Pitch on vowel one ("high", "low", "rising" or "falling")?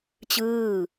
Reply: falling